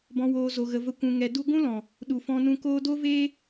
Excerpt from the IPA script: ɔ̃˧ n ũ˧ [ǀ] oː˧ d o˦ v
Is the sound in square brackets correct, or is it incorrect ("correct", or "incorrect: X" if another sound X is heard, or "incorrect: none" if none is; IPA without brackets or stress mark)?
incorrect: k